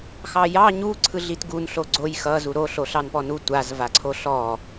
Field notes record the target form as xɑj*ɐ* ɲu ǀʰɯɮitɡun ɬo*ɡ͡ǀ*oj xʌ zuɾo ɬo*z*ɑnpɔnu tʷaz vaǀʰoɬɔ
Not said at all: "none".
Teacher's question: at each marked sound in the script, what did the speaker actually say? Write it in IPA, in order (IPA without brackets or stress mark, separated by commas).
ɑ, ɡ͡ǀ, ɬ